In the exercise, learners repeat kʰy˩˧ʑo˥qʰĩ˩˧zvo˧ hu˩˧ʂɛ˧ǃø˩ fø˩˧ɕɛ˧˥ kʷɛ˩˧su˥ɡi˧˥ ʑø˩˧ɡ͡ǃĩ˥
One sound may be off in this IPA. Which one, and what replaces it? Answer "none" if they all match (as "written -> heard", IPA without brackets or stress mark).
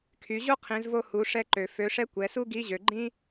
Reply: ɕ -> ʂ